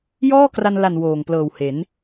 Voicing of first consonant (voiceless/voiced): voiced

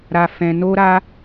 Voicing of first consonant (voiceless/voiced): voiced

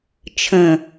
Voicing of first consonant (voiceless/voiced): voiceless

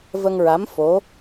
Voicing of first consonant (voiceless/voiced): voiced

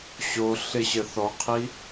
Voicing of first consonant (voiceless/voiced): voiceless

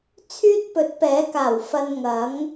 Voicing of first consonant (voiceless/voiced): voiceless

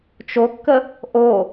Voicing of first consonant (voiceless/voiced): voiceless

